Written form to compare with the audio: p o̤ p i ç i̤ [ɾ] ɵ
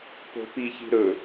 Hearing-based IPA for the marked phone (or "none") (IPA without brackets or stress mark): ɾ